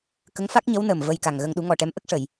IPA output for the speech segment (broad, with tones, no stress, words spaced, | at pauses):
kə˧˥ŋfa˦˥k̚ɲə˧˥w nəː˨˩mvə˧jka˨˩ŋɣə˧ŋ ɗu˨˩˦ŋɔ˨˩ʈɛ˧˥mʔə˦˥k̚ ʂə˨˩˨j